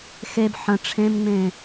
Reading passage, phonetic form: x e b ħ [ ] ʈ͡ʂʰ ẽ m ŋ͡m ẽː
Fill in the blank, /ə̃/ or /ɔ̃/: ə̃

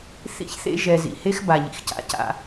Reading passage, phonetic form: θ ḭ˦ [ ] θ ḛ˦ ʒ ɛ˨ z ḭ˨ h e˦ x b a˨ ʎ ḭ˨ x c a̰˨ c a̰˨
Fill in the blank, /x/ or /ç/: ç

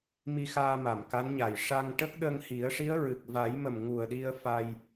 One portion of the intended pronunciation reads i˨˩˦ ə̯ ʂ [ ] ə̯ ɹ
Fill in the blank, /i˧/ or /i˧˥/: i˧˥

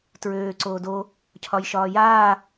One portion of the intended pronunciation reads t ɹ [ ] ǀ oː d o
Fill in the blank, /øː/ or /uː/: øː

